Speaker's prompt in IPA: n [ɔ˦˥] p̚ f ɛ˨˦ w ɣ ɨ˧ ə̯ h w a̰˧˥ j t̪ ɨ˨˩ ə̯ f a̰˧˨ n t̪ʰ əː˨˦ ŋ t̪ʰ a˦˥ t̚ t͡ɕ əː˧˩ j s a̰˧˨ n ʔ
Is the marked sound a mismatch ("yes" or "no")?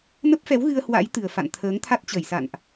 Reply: yes